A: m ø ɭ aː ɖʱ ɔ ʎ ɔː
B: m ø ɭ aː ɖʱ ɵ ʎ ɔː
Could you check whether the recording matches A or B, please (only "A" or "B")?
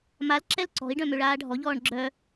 A